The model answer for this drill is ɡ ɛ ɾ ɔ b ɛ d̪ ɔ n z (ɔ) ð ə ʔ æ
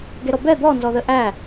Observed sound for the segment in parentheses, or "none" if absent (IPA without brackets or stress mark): ɔ